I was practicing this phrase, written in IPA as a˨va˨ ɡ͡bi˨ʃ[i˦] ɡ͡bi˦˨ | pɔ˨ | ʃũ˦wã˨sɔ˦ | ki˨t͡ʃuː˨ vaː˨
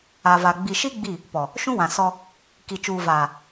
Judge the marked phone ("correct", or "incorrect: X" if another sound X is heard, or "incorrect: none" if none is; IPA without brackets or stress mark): correct